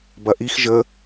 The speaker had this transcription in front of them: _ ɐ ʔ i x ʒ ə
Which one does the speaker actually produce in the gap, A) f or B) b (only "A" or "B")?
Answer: B